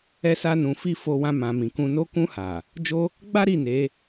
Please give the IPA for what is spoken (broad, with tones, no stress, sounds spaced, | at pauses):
ɛ˦ s a˦ n ũ˧ f i˦ f o˧ w ã˧ m ã˨ m ĩ˨ k ũ˧ n o˧ k ũ˧ h a˨ | d͡ʒ o˦ | ɡ͡b a˦ ɾ i˦˨ n e˨˦